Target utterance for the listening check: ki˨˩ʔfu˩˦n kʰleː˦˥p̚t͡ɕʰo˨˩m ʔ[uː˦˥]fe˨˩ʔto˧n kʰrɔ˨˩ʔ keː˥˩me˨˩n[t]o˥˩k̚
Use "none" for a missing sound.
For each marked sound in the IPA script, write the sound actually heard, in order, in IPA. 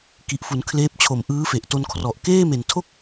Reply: ɯː˦˥, tʰ

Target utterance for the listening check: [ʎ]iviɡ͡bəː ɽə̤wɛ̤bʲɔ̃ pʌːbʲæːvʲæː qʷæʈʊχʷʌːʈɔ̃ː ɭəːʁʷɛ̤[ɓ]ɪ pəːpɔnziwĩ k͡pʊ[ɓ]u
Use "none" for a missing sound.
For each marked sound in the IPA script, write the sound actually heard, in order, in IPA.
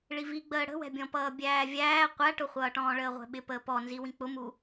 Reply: ɭ, ɓ, m

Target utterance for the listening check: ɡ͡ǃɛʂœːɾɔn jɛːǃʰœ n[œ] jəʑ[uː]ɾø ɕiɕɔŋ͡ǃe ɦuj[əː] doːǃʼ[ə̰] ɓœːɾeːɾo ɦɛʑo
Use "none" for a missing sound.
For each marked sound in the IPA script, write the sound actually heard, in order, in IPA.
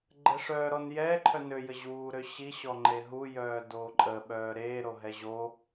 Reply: ø, uː, œː, ə

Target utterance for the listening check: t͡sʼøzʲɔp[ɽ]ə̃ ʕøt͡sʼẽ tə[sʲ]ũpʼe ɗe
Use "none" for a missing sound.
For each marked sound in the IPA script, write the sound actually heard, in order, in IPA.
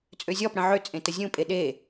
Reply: ɽ, zʲ

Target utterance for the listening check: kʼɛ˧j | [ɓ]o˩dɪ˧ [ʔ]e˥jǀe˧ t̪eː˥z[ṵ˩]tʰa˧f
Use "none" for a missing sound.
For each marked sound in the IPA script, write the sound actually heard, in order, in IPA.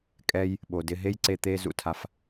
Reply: ɓ, ɦ, ṵ˩

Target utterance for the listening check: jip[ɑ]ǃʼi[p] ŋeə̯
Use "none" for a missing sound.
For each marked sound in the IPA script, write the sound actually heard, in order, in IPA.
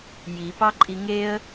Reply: ɑ, none

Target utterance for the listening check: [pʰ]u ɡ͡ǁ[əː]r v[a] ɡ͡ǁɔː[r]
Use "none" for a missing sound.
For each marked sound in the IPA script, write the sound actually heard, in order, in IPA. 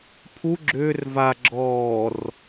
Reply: pʰ, ʏː, a, r

